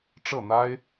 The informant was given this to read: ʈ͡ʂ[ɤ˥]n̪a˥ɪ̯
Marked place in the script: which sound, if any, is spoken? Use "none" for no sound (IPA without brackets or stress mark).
ɤ˥˩